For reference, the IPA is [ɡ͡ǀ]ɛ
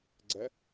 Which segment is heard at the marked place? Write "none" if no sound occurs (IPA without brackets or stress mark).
ɡ͡ǀ